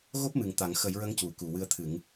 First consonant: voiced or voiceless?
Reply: voiced